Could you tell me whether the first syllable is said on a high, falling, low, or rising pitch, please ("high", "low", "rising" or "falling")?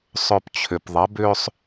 low